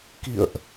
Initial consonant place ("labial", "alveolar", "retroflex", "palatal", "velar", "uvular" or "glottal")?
velar